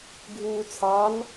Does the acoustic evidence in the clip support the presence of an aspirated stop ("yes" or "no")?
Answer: yes